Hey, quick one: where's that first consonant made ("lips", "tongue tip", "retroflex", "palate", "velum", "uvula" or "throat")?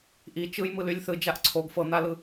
throat